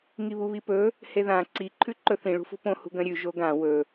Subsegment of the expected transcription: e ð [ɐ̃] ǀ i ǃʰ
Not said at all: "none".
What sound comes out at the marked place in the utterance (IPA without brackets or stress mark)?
ã